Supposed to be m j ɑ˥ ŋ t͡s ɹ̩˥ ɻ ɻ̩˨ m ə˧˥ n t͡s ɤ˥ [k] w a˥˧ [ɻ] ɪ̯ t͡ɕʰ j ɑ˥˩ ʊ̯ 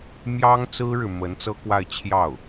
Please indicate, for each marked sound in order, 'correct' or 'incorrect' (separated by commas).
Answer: correct, incorrect